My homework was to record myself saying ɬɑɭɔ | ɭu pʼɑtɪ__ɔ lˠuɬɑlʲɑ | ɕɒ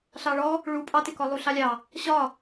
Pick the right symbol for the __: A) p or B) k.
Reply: B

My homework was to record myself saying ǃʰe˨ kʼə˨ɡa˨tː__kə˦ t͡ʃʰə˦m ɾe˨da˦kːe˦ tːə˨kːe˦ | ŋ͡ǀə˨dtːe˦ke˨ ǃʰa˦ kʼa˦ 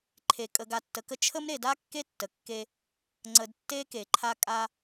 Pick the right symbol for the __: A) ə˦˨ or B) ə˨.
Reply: B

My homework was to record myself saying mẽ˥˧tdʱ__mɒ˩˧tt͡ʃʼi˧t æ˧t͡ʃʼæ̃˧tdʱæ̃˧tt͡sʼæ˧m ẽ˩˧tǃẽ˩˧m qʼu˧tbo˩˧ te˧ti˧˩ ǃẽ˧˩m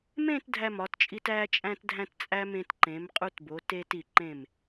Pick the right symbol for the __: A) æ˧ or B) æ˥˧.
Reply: A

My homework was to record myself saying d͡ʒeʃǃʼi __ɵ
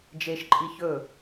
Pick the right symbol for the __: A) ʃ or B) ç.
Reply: B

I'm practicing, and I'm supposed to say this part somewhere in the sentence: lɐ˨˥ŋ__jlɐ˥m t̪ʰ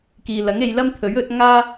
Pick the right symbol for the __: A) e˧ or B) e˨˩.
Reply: A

